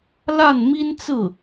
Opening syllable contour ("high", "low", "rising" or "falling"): falling